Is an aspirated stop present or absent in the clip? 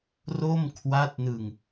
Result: present